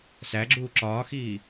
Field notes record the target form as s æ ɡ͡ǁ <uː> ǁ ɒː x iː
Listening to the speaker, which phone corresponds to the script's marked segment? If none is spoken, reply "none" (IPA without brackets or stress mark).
uː